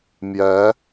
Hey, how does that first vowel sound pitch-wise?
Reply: rising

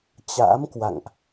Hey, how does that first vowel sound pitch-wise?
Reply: rising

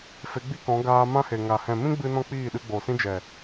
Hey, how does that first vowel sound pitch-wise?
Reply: rising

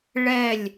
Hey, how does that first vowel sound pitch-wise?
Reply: falling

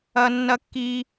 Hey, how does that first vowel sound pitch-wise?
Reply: high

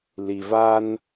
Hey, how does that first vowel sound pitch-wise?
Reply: low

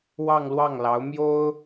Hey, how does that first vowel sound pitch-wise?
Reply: falling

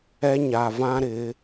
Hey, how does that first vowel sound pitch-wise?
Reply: high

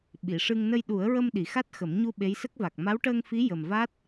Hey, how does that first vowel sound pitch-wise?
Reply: low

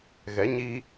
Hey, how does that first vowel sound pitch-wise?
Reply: rising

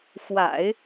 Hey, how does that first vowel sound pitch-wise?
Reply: low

